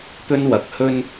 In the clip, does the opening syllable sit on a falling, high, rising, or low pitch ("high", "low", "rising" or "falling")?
high